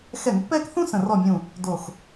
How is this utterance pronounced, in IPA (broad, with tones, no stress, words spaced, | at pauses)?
xɛ˧˩˧ŋpːɛː˥˧k θũ˥ sə̃˧˩rɔ˥˩mʲũ˧˩ | do˧˩x